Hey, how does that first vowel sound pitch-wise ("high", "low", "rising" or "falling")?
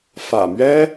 low